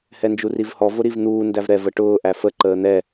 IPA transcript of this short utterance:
h ɛ n d͡ʒ u r i v h ɔ v ʊ ɾ i v n̪ uː n d æ v ɾ ɛ v ə ʈ ʊː ʔ æ f ə ǃ əː n̪ ɛ

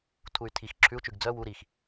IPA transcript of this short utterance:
tʰ u y̯ tʰ i x ǁʰ ʉ u̯ t͡ʃ ʉ ɡ d͡z œ w u ɾ i x

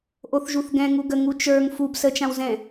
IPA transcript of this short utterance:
ʔ o θ ʒ u θ ɡ ɛ̃ ŋ u ɡ ə ŋ u t͡ʃ ə˞ ŋ f u b s ə t͡ʃ ã w z ɛ̃

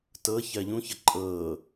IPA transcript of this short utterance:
t ɤ ç ɜ ʎ ũ ç ə ǃʼ ɤ

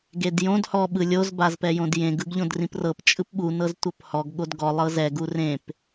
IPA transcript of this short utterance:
ɡ e d j õ d h ɔ ɓ ɯ lʲ o z b a z p ɛ j õ d j ẽ ɡ ɯ ɡ ʎ õ d r ĩ p r ɤ p t͡ʃʼ ɯ p ɓ u n ɤ z tʷ ɤ p h ɔ ɡ ɠ o d ɡ ɔ lˠ ɤ z ɛ ɡ u r ẽ p

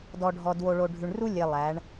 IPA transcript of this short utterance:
d ɔ˨ ɖʱ ɔ˨ d w o˨ ɭ o˨ ɖʱ ʉ˨ ɳ r u˦ lʲ e˨ lˠ æ˨˦ ɳ

